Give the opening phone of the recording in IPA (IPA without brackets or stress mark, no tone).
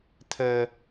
t̪ʰ